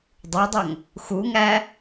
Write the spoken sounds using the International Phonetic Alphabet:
dˤ o dˤ œ ŋ | x u ŋ æ

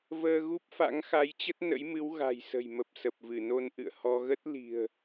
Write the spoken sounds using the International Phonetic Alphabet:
v əː˧ ɣ u˦˥ p̚ f a̰˧˥ ŋ x a˨˦ j t͡ɕ ə˦˥ t̚ n ə̰˧˥ j m ɨ˨˦ w ɣ a̤˨˩ j s ə̤˨˩ j m ə˨˩ p̚ s ə˨˩ p̚ v ɨ˧˩ n o˧ n ʔ ɨ̰˧˨ ə̯ h ɔ˧ ɣ ə˦˥ t̚ l i̤˨˩ ə̯

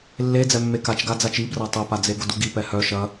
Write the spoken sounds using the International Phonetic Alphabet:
lː e d͡z ɛ mː e k a t͡ʃ ɡ a d͡z a t͡ʃ i b r a tˤ ɐ p a d͡z e ɡ ʊ d u ɡ i p ɛ h œ ʃ ɐ

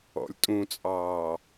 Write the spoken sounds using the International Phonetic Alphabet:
ɔ̰ lʲ tʼ ũ t͡sʼ ɑː

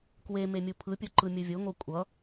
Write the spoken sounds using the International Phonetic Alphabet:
k w e m e mʲ u pʰ ɯ pʲ o ǃ ɯ mʲ ɯ vʲ o ŋ o kʷʼ ʌ

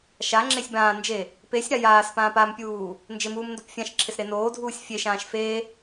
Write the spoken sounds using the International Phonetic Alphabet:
ʃ a ŋ͡ǁ e sʲ b ãː n d͡ʒ e | p e sʲ ɾ a j aː s p ãː p a m pʲ uː | n d͡ʒ ɪ m uː m n d o p fʲ ã ʃ ǁʰ ɪ s ɾ e n oː dʱ uː sʲ fʲ e ʃ ãː ʃ f e

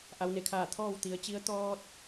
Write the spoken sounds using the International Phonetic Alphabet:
ʔ a˩˧ w n e˧˩ kʰ aː˧˩ t̪ʰ ɔː˥˨ w t̪ i˩˧ ə̯ t͡ɕ i˧˥ ə̯ t̪ ɔː˧ t̚

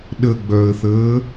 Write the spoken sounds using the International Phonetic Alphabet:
ɗ ə ɡ͡b œ ə̯ θ əː

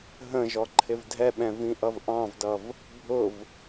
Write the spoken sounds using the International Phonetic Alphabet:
ɦ ə̃ ʒ ɔ ǃʰ ɪ v dʱ ɛ ɓ ɛ̃ v ĩ ʔ ʌ v ʔ ɑ̃ v d ʌ v | bʱ ʊ v

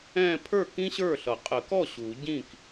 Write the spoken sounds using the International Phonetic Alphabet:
ɛ̃˥˧ pʰ ə˞˥˩ k ĩ˥ ɕ ə˞˥˩ ɬ ʌ˨˩˦ qʼ ə˨˩˦ k ɔ˥˩ ɕ u˨˩˦ ɟ ĩ˥˩ k

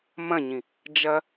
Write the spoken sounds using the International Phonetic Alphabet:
m ɐ̃ ɲ ĩ | d͡ʒ ɐ

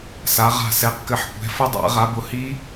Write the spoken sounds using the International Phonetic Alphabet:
s a˨˦ ʁ a̤˦˨ s ɛ˨˦ q k ɘ˨˦ ħ kʷ ɛ̤˨˦ f ʊ˦˥ dˤ a̰˨˦ ʁ a˨˦ b ʊ˨˦ h i˦˥

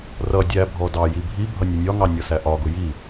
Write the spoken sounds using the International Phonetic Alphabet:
r ʌ dʲ æ bʱ ɔ d ɑ j i bʱ i bʱ ʌ nʲ ʌ nʲ ɒ ŋ ɑ nʲ ʌ s æ ʔ ɒ ɡ ʊ j i

